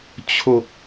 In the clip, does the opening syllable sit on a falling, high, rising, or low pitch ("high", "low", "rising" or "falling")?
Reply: low